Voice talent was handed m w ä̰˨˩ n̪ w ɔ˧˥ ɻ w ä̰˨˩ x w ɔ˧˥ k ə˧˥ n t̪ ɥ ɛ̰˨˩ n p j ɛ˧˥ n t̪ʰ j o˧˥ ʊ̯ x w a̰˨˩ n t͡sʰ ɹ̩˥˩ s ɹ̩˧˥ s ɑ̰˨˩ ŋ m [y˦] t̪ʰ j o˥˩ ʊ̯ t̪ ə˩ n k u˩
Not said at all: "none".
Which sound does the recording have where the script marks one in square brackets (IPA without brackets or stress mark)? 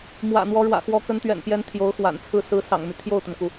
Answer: y˦